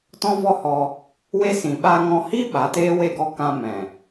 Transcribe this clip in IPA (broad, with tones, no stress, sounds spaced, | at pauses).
t ɔ̃˧ v ɔ˧ h ɔ˧ | w e˦ s ĩ˨ ɓ a˧ ŋ ɔ̃˧ h i˦ ɓ a˨˦ t eː˦ w e˦˨ ɡ ɔ˦˨ k ã˧ m ɛ̃˨